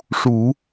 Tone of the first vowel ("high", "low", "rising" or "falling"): low